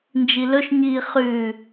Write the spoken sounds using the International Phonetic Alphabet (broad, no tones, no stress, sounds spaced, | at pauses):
n d͡ʒ i l ɵ ʃ ɲ iː χ ʉ